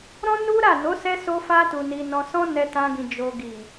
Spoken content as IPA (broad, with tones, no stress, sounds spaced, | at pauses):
ɾ ɔ̃˦ n u˦ ɾ a˦˨ n o˨˦ s ɛ˧ s o˧ f a˧ t u˨ n i˨ n ɔ̃˨ s ɔ̃˧ n ɛ˧ t ã˧ ɡ ĩ˨ d͡ʒ o˨ ɡ i˨